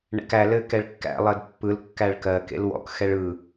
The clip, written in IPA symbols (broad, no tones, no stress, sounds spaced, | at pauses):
ɳ ɛ̰ k æ l ɘ k ɛ ɭ kː æ̰ lˠ ɜ d pː ɯ l kː æ ɭ k ɜ k ḛ l w ɔ̰ k x ɛ ɭ ɯ